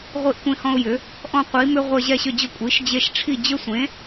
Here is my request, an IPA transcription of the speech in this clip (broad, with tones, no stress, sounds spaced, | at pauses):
ʁʷ i˦ ʔ kʷ ẽ˦ h ɔ̃˦ ʊ̯ j ʏ˩˥ | ʔ ɔ̃˦ qʷ i˩˥ m ʏ˦ ʁʷ e˦ ʑ ɛ˥˨ ɕ ʏ˥˨ d͡ʑ ʊ˥˨ kʷʼ i˩˥ ʃ d͡ʑ e˦ ʃ ʈ͡ʂʰ i˥˨ d͡ʑ ʏ˦ sʷ ẽ˩˥